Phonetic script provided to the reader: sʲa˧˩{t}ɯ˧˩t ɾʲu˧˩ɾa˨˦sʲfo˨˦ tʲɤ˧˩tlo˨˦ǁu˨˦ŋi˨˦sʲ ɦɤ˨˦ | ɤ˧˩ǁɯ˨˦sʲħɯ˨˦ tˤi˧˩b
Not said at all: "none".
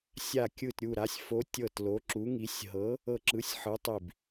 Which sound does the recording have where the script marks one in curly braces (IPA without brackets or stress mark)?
kʲ